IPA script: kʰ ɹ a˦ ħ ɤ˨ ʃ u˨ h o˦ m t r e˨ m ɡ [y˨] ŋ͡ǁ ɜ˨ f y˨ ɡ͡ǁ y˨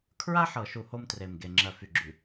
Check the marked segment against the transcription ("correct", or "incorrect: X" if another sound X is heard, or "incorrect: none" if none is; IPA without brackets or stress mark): incorrect: e˨